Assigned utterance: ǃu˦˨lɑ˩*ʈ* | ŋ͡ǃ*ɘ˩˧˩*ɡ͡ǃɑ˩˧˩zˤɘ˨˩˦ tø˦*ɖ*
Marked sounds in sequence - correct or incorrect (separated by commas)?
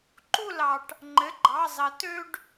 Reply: correct, correct, correct